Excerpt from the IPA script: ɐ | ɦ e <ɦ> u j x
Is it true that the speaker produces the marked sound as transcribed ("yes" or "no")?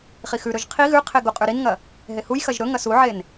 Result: no